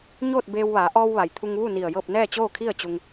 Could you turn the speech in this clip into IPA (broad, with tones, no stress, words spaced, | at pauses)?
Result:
ɲoː˥˨t̚beː˧w ʋaː˩˧ʔɔː˧w ʋa˩jt̪ʰu˧ŋʋu˥˨ ni˧˩ə̯jɤː˥˨p̚ nɛː˥˨t͡ɕoː˥˨kʰi˥˨ə̯ t͡ɕu˧ŋ